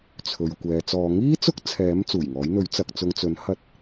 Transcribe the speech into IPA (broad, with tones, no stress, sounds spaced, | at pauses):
t͡sʰ ɵ˨ ɥ kʷ ɛː˨ t͡s ɔː˨˧ ŋ iː˥ t͡s ʊ˥ k̚ t͡sʰ ɛː˨˥ m t͡s uː˨˩ j ŋ ɔː˨˥ j n̪ ɵ˨˥ ɥ t͡s ɐ˨ k̚ t͡s ʊ˨˧ ŋ t͡s ɵ˨˥ n h ɐ˧ t̚